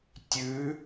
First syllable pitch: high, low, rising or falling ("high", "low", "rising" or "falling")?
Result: rising